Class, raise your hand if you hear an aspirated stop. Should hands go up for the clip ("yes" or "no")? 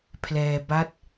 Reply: yes